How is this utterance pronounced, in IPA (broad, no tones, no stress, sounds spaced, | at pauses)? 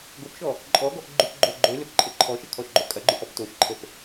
ɡ o p ʃ ɔ | ǃʼ ɔ ɡ ɔ ʔ ɡ͡ǃ ʉ p ɡ͡ǃ o ɡ͡ǃ ø l ø p ǃʼ ə ǃʰ ɔ ʃ ə kʰ ɔ ʃ ɡ͡ǃ o kʼ ɐ ɡ͡ǃ ʉ ʔ ɔ p t o ʃ ǃʰ ə p